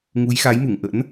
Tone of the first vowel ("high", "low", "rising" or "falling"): rising